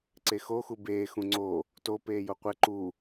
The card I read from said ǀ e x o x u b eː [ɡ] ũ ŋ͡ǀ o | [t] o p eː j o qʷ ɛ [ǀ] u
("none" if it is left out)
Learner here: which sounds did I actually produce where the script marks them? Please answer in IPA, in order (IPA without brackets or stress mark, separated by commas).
x, t, ǃ